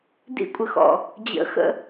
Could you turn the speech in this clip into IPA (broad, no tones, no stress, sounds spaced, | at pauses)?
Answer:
d ḭ kʷʼ ə x ɔ̰ | d͡ʑ ə̰ x ə̰